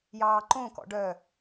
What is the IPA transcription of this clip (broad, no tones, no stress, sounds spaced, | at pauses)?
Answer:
j ɑː ǃ õ k ɔ̰ ɖ œ